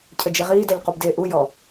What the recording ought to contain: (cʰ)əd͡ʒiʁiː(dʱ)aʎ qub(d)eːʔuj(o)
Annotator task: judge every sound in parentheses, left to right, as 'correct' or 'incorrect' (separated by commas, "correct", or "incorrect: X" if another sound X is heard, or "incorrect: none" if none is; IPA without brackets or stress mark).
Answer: correct, incorrect: d, correct, incorrect: ɔ